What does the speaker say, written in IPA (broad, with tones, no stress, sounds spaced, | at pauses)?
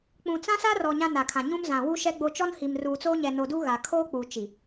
k͡p ũ˨ t͡s ã˦ s a˦ r ɔ˨ ɲ ã˦ n a˨ kʰ ã˨ ɲ ũ˦ m z ã˨ w u˦ ʃ ɛ˦ ɡ͡b o˦ t͡ʃ ɔ˦ n h i˨ m r uː˨ t͡s oː˦ ɲ ɛ˨ n o˨ d u˦ ɣ a˨ kʰ oː˦ k͡p uː˨ t͡ʃ i˨